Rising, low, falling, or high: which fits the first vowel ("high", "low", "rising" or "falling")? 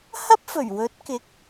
high